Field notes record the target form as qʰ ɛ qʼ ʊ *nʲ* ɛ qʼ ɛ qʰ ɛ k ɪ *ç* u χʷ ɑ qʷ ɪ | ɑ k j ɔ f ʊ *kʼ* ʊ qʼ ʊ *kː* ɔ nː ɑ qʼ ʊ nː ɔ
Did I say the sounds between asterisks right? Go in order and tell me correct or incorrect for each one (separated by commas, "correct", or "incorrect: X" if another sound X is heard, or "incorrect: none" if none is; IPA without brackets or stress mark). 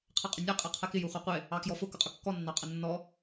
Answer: correct, incorrect: j, incorrect: k, correct